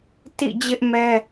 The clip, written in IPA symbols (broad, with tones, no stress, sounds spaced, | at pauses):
t ḭ˦˨ d͡ʑ ɪ˦ ʔ m ɛ˦